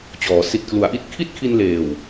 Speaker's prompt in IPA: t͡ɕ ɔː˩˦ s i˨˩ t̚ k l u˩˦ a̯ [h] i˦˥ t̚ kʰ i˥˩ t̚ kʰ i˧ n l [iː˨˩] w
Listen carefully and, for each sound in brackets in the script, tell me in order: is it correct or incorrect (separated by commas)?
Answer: incorrect, incorrect